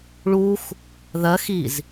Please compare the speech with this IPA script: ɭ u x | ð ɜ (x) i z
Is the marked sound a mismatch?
no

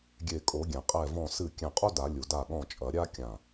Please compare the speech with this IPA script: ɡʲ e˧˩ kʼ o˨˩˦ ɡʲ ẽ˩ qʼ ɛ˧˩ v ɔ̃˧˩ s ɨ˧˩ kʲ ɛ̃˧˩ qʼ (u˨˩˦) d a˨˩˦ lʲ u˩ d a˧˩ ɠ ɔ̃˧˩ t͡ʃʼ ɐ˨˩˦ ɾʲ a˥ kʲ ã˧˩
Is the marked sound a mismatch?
yes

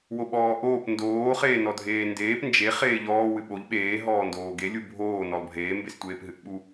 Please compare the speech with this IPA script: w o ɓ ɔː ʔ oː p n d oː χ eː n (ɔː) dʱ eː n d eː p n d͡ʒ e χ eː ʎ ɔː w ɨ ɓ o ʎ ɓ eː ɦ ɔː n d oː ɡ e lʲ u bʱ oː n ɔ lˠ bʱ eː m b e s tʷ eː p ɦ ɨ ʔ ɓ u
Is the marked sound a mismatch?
yes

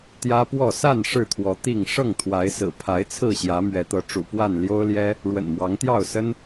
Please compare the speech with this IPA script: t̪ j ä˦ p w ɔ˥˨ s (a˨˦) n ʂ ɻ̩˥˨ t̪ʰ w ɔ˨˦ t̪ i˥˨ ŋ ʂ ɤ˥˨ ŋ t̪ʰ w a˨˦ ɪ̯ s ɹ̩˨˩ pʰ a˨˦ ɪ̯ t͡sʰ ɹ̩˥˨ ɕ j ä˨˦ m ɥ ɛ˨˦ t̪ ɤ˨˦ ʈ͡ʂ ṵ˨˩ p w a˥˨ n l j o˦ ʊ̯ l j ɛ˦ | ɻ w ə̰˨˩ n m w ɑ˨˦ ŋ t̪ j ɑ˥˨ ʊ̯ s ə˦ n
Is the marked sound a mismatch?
yes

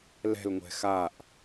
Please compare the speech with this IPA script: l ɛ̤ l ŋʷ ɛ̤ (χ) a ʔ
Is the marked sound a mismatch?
yes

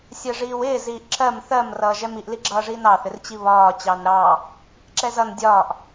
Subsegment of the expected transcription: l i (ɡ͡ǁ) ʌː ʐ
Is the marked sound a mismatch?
no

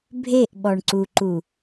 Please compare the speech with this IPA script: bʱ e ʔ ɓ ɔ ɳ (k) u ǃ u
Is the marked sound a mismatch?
yes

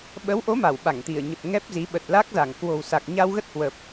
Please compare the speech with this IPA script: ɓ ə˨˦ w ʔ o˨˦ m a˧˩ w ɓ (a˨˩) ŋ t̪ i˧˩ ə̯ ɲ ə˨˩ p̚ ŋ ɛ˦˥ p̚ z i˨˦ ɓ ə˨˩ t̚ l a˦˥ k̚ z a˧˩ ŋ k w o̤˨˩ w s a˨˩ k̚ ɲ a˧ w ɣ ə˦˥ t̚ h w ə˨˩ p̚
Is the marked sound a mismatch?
yes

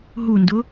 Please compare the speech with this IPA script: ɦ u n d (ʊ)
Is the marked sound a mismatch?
no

